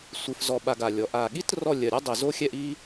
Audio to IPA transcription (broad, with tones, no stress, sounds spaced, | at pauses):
sʷ ɨ˧ f z ɔ˧ ɓ a˧ ɡ a˧˩ lʲ ɔ˩˧ ʔ a˧˩ ɠ i˥ t r ɔ˥˧ lʲ ɜ˧˩ ɾʲ ɔ˥ dˤ i˧˩ z o˥ xʲ ɛ˥˧ ʔ i˥